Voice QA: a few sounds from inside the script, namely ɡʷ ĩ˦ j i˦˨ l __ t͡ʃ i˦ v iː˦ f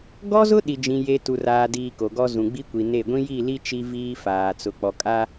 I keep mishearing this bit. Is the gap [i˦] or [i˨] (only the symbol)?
i˦